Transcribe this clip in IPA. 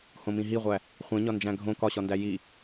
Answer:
h õ m ĩ ɦ i ʁʷ æ | χʷ ẽ ɲ ɒ n d͡ʒ æ̃ ɡʱ õ k ɒ ɕ ɒ n d æ j i

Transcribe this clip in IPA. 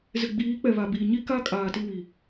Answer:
z ɪ˨ ɡ͡b iː˨˦ k͡p ɛ˨ β a˨ b iː˨ ɲ i˦ k a˦ kʼ aː˨ t i˦˨ w i˨

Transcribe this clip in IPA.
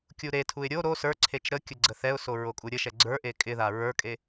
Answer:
kʲ u ɾ e tʰ u ɪ̯ ɾʲ o ɾ o s ə˞ ǀʰ e t͡ʃ ɾ ə kʲ ə ɡ͡ǀ ə θ ɛ ʊ̯ s o ɹ o kʼ u ɾʲ ə ʃ ɛ ɡ͡ǀ ə˞ ʔ e kʼ ɪ ð a ɹ ə˞ kʼ e

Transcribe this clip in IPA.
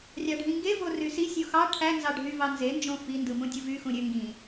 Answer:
rʲ ɑ ɖʱ ĩ ŋ ɡ e v o r y s i sʲ o x ɑ ʈʰ æ n z ɑ ɖʱ y v ɑ n z e n d͡ʒ õ f i n d ɯ m ũ dʲ ɯ v y x ũ ɾʲ ø ŋ ɡ ĩ

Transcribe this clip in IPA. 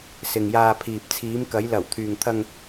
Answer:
s ɪ˨ ŋ j aː˧ pʰ iː˨ p̚ t͡sʰ iː˨˧ m k ɐ˨˧ j l ɐ˨˩ w t̪ʰ yː˨ ŋ t̪ʰ ɐ˧ ŋ

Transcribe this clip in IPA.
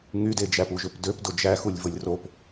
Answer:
ŋ y d e d͡ʒ æ p u ʒ ø p d ø p d o d͡ʒ æ x u lʲ v o lʲ r o p

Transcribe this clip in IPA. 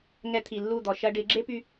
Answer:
ŋ ɛ˧ t̪ʰ i˨ lː u˦˨ d̪ ɔ˨ ʃ ɐ˧ ɖ ɪ˨˦ ɡ͡ǁ e˦ p y˧

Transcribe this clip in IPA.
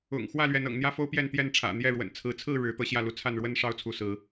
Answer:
ʊ̰˨˩ ŋ x w ä˥˨ l ɥ ɛ˨˦ n ɤ̰˨˩ ŋ n̪ j ä˦ f o˦ ʊ̯ p j ɛ˥˨ n t̪ j ɛ˥˨ n ʈ͡ʂʰ ä̰˨˩ n̪ j ɛ˥˨ ɻ w ə̰˨˩ n t͡sʰ ɹ̩˨˦ t͡sʰ ɹ̩˥˨ ɻ ɻ̩˨˦ t̪ ɤ˦ ɕ j ä˥˨ l u˨˦ t͡sʰ a˥˨ n ɻ w ə˦ n ʂ ɑ˦ ʊ̯ t͡sʰ u˨˦ s ɹ̩˨˦

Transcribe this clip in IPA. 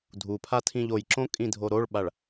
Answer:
dʱ u pʰ a tʰ ĩ ʎ o j ǁ õ kʼ ĩ dʱ o ɾ o ɭ ɓ a ɭ

